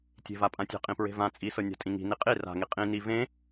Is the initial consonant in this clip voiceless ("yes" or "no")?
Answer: yes